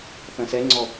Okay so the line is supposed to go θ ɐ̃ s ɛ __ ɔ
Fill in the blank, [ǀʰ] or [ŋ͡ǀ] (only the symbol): ŋ͡ǀ